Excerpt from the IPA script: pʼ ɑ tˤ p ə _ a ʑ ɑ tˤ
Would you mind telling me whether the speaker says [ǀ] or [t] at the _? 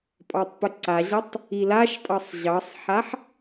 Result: ǀ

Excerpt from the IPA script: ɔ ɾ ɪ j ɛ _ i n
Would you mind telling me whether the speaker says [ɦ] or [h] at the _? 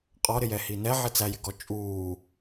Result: h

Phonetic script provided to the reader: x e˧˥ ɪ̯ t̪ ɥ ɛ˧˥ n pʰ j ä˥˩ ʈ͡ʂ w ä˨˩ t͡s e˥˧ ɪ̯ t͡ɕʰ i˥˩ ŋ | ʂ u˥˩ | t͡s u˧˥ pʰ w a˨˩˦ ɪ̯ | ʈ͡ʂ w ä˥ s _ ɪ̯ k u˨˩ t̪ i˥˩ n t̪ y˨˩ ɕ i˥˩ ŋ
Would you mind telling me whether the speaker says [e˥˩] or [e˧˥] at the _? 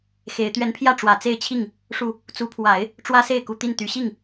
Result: e˥˩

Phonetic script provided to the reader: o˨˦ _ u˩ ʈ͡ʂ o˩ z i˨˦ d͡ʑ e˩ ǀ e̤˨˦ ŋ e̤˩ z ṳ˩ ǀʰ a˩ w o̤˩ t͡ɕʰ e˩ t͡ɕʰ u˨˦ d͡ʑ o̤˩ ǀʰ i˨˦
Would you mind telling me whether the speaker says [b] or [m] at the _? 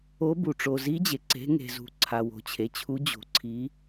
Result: b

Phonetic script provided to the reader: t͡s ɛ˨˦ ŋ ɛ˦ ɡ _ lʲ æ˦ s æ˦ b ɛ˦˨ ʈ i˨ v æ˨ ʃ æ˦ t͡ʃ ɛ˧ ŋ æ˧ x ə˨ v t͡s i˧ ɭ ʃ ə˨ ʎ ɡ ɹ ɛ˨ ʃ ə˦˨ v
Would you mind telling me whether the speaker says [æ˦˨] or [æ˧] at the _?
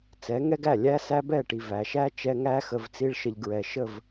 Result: æ˦˨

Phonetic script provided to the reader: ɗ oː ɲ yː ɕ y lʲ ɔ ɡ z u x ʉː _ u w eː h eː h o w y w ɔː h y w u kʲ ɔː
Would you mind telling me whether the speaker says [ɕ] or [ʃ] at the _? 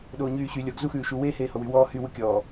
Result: ʃ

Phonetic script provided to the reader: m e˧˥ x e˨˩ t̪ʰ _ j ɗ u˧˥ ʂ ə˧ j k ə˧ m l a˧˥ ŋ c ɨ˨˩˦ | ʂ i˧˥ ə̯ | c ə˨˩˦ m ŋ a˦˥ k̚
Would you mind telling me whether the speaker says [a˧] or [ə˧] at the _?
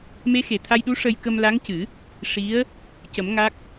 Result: a˧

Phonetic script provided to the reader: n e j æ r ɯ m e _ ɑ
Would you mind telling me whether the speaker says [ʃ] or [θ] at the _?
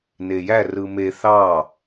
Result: θ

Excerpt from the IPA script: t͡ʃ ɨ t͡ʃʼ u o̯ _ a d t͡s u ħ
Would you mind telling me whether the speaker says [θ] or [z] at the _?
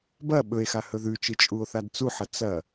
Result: θ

